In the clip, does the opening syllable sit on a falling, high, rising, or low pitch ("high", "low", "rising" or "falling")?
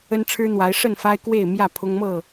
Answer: high